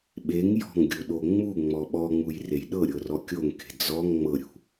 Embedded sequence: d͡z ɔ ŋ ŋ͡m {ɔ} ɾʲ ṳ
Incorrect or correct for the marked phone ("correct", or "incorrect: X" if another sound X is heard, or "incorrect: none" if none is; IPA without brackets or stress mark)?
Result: incorrect: ɤ